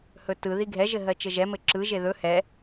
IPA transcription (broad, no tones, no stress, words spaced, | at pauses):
hɵtɯ ðiɡʱɛ ʒɘɦɜt͡ʃɘʒɛ mɘǁɯ ʒeðɵ hɛ